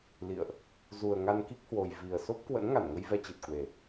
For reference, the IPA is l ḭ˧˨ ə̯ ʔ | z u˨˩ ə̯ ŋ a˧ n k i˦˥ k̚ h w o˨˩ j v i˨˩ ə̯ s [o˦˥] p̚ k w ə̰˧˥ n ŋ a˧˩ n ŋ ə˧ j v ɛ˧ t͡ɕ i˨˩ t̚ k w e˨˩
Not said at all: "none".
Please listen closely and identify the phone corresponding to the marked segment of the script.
o˦˥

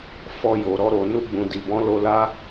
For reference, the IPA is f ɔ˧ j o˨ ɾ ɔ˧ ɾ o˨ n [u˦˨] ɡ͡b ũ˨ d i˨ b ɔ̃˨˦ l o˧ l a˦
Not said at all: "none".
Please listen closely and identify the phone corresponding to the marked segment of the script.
u˧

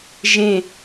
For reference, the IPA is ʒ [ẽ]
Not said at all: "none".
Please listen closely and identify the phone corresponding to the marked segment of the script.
ẽ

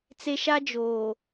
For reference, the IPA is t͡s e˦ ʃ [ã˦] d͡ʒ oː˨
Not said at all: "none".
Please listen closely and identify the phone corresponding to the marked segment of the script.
a˦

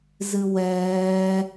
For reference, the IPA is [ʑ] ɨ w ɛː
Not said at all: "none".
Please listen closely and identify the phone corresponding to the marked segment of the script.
z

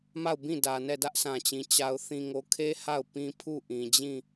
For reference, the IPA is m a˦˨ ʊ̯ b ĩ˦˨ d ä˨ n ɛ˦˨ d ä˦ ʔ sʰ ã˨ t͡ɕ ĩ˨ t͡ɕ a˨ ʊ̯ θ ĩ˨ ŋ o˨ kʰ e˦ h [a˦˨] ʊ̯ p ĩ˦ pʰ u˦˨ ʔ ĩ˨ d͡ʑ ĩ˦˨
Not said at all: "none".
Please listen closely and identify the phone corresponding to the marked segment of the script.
a˦˨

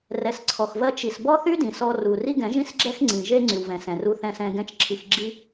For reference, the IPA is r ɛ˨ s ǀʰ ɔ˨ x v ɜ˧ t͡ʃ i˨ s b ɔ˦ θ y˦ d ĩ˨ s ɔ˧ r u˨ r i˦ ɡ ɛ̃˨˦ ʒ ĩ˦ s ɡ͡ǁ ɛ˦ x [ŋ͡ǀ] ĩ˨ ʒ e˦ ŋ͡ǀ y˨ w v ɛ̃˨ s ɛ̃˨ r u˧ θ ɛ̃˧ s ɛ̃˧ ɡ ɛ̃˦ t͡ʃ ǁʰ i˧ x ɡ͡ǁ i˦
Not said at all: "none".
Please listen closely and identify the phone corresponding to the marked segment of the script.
ŋ͡ǀ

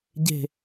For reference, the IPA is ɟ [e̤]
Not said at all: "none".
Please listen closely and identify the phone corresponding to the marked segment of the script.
e̤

